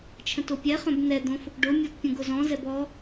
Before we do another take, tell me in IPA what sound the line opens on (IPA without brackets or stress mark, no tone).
t͡ʃʰ